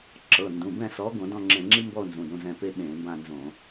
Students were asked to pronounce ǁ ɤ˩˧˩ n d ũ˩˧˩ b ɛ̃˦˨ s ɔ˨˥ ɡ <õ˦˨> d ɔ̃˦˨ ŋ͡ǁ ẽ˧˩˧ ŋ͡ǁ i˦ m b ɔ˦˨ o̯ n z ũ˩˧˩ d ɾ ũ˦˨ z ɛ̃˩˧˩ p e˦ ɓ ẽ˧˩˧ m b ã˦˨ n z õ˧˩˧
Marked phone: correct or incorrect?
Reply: incorrect